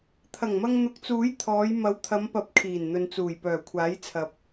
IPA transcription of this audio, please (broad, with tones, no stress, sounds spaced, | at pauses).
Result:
t̪ʰ ɐ˨˩ ŋ m ɐ˧ ŋ n̪ ʊ˨˥ k̚ t͡s uː˨˥ j t̪ʰ ɔː˨˧ j m ɐ˨˧ w t̪ʰ ɐ˨˧ m p ɐ˨˥ p̚ kʰ iː˨˩ n n̪ ɵ˨ n t͡s uː˨˩ j p œː˨˩ kʷʰ aː˨˥ j t͡sʰ ɐ˨˥ p̚